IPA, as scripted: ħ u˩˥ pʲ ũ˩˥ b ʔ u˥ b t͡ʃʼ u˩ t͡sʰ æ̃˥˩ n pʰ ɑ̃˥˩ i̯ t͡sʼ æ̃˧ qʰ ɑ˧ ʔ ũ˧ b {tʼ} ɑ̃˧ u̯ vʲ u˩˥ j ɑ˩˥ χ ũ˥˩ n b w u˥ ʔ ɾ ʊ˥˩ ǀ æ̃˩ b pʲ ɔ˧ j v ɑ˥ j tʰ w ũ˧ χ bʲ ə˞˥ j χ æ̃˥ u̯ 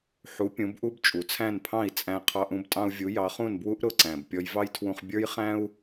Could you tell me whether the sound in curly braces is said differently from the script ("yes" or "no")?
no